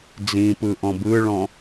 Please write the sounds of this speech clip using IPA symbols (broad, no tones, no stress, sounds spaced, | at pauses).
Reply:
d͡z ĩ p ɯ ʔ ɔ̃ b ɯ ɭ ɔ̃